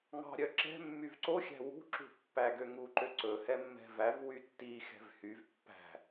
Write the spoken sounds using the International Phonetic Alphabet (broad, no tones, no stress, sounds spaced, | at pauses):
ŋ ɑ̤ ɾʲ œ ǁ ɛ̤ mː y v ǀ o xʲ æ̤ w ṳ ǁ ṳ pː æ ɡ ø ŋ u ǃ ø ǀ ɵ h ɛ mː ɛ̤ v æ v w y tː i x ɛ̤ v h y v pː æ̤